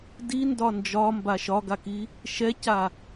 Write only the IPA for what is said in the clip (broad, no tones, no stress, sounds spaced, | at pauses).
d i n d ɒ n d͡ʒ ɒ m b a ʃ ɒ ɡ a k i | ʃ ɛ c a